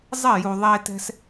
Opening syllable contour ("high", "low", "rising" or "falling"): falling